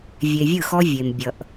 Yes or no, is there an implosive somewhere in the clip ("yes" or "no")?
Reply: no